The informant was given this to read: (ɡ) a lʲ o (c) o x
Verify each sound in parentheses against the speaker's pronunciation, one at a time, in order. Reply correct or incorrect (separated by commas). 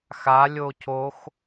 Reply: incorrect, correct